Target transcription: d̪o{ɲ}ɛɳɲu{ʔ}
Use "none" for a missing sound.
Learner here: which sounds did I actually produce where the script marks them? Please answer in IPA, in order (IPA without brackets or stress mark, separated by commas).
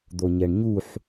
ɲ, ħ